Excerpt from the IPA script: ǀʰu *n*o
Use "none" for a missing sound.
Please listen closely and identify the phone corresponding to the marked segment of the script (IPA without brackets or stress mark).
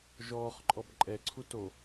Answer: t